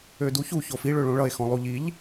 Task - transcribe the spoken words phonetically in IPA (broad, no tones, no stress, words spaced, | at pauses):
øduçu çofi ɭøɭõɭʌe̯ xɔ̃lˠuʎiʎ